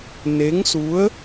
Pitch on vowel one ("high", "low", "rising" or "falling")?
rising